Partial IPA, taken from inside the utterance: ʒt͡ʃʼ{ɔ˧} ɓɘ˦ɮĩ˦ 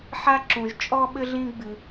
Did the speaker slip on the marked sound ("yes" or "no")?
yes